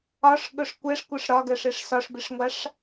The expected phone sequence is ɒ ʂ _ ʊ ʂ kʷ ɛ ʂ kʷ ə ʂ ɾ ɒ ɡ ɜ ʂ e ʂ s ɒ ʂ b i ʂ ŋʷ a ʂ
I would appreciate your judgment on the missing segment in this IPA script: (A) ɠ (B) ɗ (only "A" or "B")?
A